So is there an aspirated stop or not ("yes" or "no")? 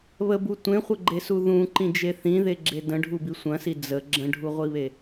no